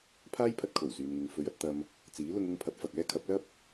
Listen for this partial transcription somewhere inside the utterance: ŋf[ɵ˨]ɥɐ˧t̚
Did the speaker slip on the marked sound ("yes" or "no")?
yes